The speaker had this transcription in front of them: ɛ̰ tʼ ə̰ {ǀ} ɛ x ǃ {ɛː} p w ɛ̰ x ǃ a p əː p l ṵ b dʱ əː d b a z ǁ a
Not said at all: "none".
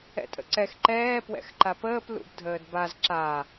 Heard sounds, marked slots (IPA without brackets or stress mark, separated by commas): ǀ, ɛː